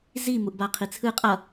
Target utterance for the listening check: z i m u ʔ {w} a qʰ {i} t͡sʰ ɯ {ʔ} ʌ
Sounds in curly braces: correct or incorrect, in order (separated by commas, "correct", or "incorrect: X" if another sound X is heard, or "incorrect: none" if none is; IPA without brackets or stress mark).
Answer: incorrect: b, correct, incorrect: qʼ